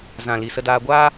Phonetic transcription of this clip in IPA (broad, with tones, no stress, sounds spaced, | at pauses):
z ã˨ l i˨ s ə˧ d aː˧ ɡʷ a˦